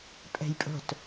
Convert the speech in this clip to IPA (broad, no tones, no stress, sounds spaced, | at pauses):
pʼ ɛ̤ j pʼ o̤ t